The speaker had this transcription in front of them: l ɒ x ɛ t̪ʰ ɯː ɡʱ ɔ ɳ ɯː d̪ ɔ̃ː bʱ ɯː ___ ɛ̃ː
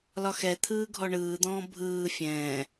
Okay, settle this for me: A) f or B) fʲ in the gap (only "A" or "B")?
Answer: B